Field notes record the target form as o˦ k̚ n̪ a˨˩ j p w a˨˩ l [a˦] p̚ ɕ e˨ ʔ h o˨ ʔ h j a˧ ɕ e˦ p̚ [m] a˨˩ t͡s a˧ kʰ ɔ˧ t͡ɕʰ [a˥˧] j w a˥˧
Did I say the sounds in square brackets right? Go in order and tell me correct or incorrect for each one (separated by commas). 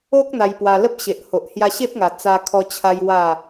incorrect, incorrect, incorrect